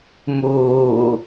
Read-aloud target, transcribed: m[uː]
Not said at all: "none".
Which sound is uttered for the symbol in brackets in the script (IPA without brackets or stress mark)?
uː